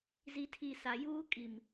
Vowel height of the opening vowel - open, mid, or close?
close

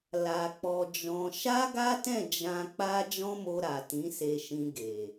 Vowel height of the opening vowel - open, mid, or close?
open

